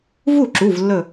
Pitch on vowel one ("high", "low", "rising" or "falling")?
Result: falling